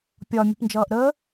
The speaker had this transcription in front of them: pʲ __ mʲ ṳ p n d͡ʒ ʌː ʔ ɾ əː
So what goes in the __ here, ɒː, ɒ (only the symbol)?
ɒ